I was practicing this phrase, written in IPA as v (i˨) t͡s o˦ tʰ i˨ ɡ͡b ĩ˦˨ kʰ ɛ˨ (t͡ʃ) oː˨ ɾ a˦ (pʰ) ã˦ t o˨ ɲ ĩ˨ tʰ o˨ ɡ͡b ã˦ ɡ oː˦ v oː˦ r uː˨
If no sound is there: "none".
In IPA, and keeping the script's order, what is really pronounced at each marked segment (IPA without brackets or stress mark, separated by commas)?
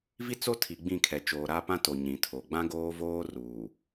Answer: i˦, t͡ʃ, p